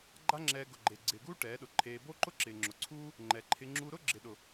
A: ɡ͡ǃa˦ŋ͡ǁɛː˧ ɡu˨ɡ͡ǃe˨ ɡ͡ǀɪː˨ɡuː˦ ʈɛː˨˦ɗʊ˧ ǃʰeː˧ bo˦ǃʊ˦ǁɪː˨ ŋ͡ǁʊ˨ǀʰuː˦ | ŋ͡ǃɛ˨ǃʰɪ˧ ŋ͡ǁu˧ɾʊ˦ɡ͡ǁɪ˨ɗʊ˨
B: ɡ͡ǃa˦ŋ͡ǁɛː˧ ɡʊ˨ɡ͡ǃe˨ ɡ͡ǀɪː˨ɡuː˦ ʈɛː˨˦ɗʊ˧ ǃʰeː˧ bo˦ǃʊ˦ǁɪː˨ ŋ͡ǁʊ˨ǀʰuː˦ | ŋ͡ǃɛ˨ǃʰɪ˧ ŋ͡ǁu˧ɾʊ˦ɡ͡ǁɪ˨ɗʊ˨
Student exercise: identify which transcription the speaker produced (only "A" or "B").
B